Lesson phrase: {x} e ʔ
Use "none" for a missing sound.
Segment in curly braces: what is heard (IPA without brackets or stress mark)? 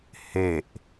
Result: h